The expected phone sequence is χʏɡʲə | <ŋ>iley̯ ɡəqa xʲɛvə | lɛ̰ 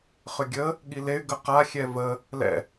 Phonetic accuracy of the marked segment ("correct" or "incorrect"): incorrect